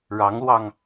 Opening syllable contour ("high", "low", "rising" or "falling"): rising